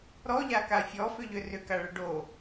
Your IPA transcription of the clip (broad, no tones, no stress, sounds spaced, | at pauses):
ɾ ɔ ʎ a k a fʲ ɔ f ʏ ʎ ʏ r ʏ k a ɭ ə ɖ o